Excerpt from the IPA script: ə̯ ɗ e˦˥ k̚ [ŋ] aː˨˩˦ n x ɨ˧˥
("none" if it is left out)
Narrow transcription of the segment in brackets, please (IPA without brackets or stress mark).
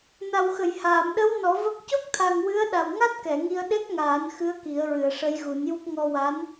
ŋ